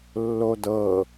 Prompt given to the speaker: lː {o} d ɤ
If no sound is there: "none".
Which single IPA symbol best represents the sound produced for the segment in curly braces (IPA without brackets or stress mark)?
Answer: o